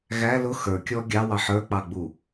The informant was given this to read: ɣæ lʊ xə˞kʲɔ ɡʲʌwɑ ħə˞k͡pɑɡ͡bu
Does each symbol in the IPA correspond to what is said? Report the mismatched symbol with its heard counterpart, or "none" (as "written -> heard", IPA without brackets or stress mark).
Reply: ʌ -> ɑ